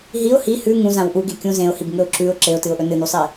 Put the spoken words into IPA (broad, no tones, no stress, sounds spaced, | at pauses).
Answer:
ɦ i ʊ̯ h i h ʉ ŋ ũ z ã w ʔ u ɡ e kʲ ũ z ẽ ʊ̯ h i b ŋ ɵ ʊ̯ ǁ ʉ ʊ̯ ǁ e ʊ̯ t ɨ ʊ̯ ʔ ɵ n ɨ n u sˤ e